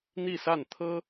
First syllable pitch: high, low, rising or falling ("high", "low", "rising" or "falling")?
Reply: falling